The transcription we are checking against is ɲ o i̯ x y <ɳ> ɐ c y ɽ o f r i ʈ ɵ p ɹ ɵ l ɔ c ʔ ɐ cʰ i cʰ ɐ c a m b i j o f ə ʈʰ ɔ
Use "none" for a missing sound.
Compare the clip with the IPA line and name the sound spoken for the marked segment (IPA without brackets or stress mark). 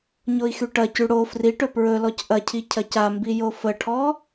ʈ